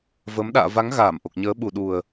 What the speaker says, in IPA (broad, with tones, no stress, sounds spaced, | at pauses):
v ə˨˦ m ɗ a̰ː˧˨ v a˨˦ ŋ ɣ aː˧˩ m ʔ o˨˩ k̚ ɲ əː˨˦ ɓ u˨˩ ɗ u˨˩ ə̯